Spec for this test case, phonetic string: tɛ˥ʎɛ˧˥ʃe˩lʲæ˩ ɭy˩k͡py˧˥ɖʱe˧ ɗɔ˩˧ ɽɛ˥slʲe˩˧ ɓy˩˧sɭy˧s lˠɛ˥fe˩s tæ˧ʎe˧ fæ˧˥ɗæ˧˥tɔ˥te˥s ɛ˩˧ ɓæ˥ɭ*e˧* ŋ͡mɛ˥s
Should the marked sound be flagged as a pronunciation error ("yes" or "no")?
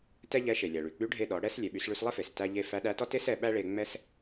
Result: no